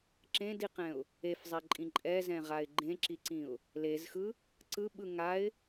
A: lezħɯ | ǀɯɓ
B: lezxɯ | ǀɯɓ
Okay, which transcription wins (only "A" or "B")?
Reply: B